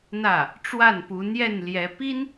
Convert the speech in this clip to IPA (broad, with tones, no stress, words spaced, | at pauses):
n̪ä˥˩ | ʈ͡ʂwa˥˩n pu˧˥n̪jɛ˥˩n ljɛ˧˥ pi˥n